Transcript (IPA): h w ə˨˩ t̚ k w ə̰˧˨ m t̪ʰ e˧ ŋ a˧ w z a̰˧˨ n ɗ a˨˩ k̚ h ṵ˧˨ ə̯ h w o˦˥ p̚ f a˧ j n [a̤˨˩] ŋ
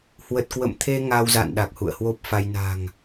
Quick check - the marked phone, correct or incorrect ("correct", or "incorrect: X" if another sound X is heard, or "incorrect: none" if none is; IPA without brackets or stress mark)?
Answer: correct